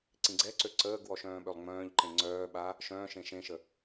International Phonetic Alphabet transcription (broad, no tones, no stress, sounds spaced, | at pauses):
ǀ ĩ ɡ͡ǀ ɛ ǀ ø ǀ əː ɡ w ɔ ʃ œ̃ː ɓ ø lˠ ŋ͡m œ̃ː ʎ ǃ ẽ ŋ͡ǀ œː ɓ a | ʃ œ̃ː ʃ ẽ ʃ ẽ ʃ ə